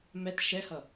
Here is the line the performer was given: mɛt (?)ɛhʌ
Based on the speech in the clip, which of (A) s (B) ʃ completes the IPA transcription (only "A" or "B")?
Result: B